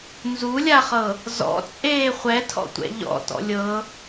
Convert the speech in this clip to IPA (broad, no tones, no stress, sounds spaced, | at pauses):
n z u lʲ a χ ɤ | z ɔ̰ t͡sʼ eː χʷ ɛ tʰ ɔ̰ tʷ ɛ̰ ʎ ɔ̰ t ɔ̰ lʲ ɤ